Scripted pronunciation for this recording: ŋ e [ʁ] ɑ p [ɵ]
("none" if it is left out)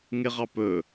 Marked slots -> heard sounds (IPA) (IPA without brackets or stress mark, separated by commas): ʁ, ɵ